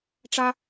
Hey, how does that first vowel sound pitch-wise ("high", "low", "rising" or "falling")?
high